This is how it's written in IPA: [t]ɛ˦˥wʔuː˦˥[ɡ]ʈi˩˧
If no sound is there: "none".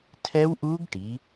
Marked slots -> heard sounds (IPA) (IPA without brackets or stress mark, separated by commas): tʰ, ɡ